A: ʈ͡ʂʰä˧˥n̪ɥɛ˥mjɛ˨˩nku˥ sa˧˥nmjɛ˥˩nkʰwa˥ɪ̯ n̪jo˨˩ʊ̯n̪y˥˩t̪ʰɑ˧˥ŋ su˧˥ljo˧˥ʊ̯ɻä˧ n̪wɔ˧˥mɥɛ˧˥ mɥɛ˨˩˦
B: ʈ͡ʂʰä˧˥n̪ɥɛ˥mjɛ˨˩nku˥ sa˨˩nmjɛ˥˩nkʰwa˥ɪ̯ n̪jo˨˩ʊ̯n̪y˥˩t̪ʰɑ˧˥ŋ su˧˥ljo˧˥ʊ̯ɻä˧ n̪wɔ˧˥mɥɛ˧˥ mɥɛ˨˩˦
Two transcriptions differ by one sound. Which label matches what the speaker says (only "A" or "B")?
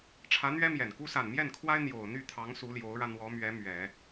B